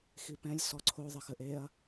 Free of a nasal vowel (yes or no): no